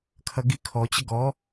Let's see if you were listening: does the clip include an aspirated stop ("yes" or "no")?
yes